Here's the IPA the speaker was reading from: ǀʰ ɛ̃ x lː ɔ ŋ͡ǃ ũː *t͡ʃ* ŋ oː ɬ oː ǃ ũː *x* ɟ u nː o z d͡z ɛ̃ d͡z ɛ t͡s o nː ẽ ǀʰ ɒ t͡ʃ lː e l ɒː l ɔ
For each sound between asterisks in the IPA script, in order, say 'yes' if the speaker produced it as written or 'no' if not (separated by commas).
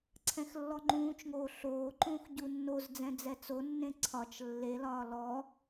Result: yes, yes